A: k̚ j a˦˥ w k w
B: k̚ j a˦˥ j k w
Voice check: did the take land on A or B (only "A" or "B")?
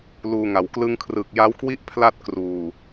A